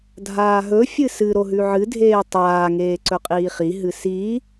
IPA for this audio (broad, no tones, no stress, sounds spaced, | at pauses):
dʱ aː ɦ ɵ fʲ ɨ s ɨ ɾ o ɦ ʉ ʕ ɨ dʱ eː tˤ aː ŋ eː ǀ ɵ qʼ iː χ i ɦ ɨ s i